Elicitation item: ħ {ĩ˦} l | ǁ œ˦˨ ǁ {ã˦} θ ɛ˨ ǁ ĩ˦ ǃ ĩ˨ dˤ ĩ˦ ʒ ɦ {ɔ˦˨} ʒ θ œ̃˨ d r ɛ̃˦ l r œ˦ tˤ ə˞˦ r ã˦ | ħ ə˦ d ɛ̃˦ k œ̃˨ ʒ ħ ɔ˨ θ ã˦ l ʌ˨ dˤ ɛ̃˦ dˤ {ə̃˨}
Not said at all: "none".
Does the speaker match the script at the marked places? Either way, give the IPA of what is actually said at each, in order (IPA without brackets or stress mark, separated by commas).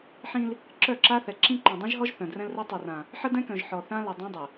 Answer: ĩ˦, a˦, ɔ˦, ə˨